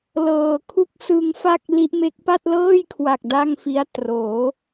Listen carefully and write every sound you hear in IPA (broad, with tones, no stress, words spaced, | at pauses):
lɤː˨˩kʰu˥˩k̚ sɯ˧ŋfa˥˩k̚ li˦˥ʔme˦˥k̚ pa˥˩t̚lɤː˥˩jkʰwa˨˩k̚ da˥˩ŋfi˦˥a̯ troː˩˦